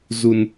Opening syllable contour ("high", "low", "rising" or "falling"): low